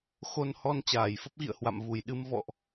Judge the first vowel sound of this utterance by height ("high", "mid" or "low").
mid